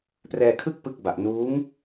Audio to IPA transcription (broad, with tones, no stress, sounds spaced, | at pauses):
p r ɛː˧ kʰ ɯ˥˩ k̚ p ɯ˦˥ k̚ b a˨˩ ʔ n uː˦˥ ŋ